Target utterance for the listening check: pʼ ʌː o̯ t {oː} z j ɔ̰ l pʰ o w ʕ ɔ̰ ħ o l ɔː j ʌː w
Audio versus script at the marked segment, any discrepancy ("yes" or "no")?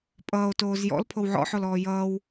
no